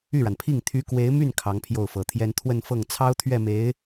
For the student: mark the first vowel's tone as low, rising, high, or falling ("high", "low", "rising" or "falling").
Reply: falling